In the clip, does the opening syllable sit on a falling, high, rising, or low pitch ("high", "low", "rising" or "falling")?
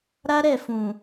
high